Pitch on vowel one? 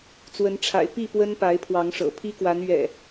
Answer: rising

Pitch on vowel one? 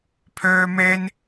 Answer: high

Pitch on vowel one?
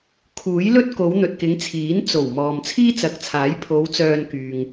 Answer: rising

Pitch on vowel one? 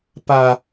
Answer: high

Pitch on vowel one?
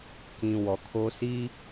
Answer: low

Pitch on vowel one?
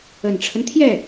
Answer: low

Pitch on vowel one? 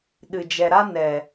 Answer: low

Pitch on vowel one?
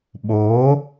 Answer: rising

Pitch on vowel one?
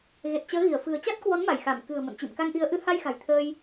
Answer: low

